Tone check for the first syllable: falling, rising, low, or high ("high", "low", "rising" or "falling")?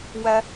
high